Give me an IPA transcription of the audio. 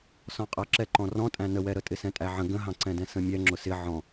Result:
s ɔ̃ qʼ ʌ ǁ ɛ ǃ ɔ̃ r ɔ̃ tʼ æ̃ n ə w ɛ ɾ ə tʼ ɪ s ɛ̃ tʼ æ ʕ ə̃ ɡ ə̃ ɦ ɑ̃ ǀ ɛ̃ d ɛ̃ s ə̃ mʲ ɛ ŋ͡ǁ ʊ s ɪ ʕ ɔ̃

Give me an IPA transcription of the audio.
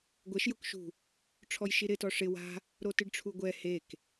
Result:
ɡʷ ɛ ʃ j ʊ k ʃ ṳ | ʈ͡ʂʰ ɔ j ʃ i ɾ ɪ t ɔ ʂ ɪ w a̤ | ɾ o t ɪ ɖ ʈ͡ʂʰ u ɡʷ ɛ h e k

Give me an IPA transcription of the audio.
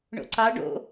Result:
ɳ o̰ ǀ ɑ ɖ o̰

